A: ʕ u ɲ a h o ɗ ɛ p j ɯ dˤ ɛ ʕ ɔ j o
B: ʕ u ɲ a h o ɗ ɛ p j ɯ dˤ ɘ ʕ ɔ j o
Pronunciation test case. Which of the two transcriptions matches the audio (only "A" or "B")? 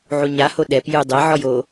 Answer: A